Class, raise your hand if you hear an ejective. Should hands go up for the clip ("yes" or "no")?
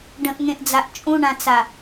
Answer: yes